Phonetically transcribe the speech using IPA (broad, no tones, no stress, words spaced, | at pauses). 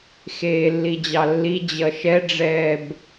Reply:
xeːlːid͡ʑɑlːi d͡ʑʌʃɛɖ͡ʐɛːb